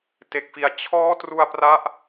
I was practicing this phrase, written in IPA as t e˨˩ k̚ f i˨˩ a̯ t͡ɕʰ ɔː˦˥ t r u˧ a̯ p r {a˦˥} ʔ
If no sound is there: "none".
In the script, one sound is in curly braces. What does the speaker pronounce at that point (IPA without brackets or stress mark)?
a˦˥